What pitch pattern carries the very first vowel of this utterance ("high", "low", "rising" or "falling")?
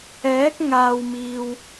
rising